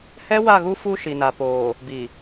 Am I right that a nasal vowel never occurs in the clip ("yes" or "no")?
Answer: yes